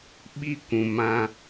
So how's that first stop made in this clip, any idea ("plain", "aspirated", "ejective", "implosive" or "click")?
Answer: implosive